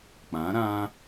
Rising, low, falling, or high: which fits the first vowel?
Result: rising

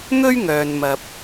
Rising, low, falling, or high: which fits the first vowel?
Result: high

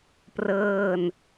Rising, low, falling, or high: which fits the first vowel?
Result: falling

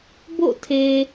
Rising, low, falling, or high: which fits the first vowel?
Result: falling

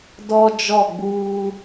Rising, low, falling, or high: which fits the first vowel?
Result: high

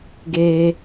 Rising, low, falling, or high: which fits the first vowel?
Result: high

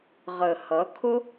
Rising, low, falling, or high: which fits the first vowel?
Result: low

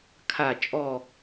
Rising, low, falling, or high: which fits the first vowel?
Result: low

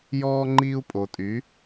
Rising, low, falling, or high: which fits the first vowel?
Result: high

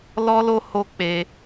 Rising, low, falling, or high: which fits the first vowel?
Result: high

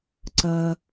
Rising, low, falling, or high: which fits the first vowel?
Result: low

